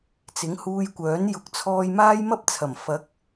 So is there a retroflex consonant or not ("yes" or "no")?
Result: no